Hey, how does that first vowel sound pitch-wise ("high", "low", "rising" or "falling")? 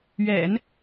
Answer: low